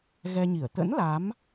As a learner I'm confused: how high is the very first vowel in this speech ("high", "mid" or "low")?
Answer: mid